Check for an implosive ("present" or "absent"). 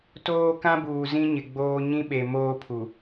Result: present